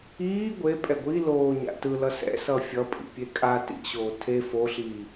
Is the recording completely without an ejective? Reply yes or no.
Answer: no